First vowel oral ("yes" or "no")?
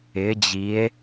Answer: yes